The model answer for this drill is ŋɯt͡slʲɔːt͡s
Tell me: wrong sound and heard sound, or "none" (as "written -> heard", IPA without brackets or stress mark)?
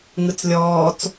none